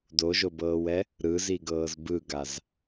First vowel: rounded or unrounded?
rounded